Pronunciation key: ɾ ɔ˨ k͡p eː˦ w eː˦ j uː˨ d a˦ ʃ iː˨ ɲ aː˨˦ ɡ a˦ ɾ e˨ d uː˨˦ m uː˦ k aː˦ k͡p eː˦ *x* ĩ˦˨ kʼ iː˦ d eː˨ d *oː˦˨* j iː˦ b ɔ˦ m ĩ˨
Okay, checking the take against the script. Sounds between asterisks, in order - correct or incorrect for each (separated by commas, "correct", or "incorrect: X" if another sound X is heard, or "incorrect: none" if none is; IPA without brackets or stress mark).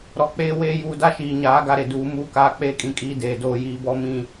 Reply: incorrect: kʼ, incorrect: oː˦